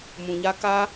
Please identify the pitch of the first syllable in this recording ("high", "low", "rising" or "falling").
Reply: low